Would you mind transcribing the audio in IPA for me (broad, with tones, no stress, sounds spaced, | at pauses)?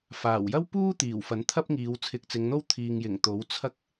f aː˨˩ w j ɐ˥ w p uː˥ t̪ iː˨˩ w f ɐ˨˥ n t̪ʰ ɐ˥ p̚ ŋ iː˨˧ w t͡sʰ ɪ˨˥ k̚ t͡s ɪ˨˧ ŋ n̪ o˥ w t̪ʰ iː˨ ŋ j ɪ˨˩ ŋ t̪ o˨˥ w t͡sʰ ɐ˥ k̚